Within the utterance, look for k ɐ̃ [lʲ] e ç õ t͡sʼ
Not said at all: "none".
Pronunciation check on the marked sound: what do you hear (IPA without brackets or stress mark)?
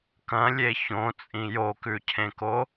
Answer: lʲ